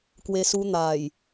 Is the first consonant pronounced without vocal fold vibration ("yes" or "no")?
yes